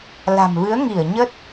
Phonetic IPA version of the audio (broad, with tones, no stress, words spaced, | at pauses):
la̤˨˩mvɨ˨˦ə̯ŋi˧˩ə̯ ɲə˦˥t̚